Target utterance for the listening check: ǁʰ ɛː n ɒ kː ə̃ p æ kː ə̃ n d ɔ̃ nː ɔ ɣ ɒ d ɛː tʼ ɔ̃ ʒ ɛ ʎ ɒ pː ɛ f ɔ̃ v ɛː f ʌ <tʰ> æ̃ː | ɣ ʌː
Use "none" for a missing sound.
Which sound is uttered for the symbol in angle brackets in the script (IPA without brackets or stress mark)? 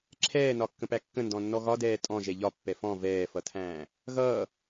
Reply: tʰ